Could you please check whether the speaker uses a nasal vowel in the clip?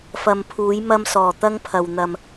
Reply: no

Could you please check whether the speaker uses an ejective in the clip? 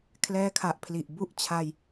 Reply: no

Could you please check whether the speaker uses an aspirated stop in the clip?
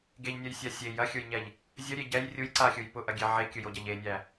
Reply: no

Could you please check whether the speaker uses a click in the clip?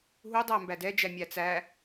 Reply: no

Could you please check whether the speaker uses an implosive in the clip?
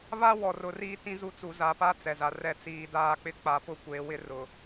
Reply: no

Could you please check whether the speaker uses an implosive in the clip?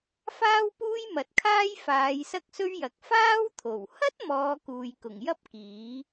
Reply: no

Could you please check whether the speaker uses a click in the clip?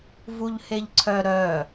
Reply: yes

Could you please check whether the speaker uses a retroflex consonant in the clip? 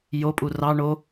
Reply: yes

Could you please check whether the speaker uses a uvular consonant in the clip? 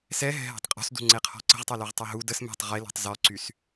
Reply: yes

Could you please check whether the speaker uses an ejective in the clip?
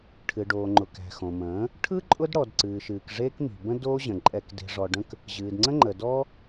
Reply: yes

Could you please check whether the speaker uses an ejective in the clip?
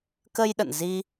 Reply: no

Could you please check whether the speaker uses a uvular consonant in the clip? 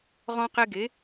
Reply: yes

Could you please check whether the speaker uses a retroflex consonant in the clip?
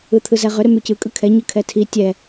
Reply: no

